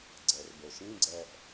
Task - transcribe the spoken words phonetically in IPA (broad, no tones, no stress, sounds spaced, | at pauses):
ɡ͡ǀ ɜ r b o ʃ ĩ ɡ͡ǀ ɜ ʔ